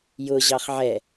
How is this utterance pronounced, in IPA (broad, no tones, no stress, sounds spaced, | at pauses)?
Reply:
j ʊ ʑ ɑ χ ʕ ɛ